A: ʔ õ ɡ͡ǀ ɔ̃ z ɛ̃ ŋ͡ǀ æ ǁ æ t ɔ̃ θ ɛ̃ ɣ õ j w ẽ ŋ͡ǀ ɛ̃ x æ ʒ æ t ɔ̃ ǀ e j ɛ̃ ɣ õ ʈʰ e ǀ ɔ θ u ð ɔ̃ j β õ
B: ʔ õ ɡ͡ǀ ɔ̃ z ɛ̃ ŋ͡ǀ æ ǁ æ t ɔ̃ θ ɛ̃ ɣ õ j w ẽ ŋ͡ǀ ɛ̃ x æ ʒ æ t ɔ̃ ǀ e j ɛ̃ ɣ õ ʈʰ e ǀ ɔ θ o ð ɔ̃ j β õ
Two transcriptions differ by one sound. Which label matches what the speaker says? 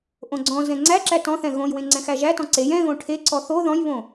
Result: B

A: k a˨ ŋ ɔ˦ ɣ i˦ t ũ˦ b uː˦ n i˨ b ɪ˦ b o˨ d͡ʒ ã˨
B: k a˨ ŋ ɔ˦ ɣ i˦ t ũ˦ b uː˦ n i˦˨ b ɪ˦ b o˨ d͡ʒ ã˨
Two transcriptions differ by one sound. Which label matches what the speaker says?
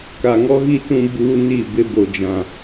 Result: B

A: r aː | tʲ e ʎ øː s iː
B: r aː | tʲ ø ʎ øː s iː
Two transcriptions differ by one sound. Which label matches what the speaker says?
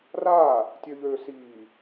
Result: B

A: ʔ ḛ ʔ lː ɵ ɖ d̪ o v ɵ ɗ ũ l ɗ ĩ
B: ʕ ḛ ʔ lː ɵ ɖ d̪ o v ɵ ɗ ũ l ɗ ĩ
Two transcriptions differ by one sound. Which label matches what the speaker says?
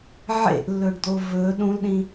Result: B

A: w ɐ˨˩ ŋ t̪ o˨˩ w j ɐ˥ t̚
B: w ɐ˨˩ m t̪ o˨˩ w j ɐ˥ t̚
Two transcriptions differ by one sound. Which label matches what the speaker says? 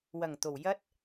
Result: A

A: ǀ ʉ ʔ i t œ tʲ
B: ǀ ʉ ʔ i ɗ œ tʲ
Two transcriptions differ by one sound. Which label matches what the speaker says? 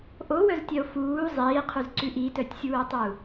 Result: A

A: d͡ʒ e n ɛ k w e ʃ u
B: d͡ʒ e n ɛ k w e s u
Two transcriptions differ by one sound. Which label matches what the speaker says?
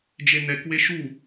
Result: A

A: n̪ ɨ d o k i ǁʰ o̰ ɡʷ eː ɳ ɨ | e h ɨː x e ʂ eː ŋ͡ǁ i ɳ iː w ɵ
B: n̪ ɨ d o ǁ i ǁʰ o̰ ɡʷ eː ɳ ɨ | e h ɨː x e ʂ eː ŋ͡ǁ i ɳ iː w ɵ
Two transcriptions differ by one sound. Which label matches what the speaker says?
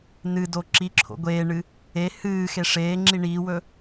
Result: B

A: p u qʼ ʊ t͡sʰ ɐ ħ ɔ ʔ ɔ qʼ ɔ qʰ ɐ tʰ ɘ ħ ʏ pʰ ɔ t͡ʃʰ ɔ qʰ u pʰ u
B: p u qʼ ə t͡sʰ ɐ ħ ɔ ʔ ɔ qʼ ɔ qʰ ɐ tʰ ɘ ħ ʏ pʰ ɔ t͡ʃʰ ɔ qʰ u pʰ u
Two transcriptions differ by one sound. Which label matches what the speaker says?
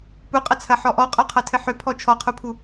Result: B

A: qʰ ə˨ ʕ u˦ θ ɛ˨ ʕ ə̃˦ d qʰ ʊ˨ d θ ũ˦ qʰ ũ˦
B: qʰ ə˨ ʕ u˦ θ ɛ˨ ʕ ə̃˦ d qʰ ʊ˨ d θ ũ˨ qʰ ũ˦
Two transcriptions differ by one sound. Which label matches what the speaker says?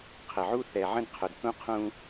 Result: A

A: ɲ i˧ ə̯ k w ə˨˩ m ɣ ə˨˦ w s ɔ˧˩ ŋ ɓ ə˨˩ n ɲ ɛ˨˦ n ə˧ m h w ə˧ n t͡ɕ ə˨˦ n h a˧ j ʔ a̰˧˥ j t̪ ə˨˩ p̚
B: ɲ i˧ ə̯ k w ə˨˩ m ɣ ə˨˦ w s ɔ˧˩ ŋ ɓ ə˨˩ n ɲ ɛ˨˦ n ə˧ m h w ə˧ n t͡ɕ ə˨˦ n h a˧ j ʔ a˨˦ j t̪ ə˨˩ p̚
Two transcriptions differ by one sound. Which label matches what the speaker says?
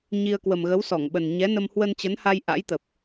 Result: A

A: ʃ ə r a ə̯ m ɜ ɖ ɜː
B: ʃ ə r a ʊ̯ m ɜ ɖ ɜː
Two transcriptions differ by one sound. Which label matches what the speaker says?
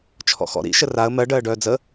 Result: A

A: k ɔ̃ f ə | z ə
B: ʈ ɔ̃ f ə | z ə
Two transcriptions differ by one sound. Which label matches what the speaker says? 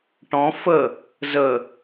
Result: B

